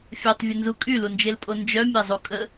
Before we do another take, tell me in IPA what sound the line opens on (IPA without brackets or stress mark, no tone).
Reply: fʲ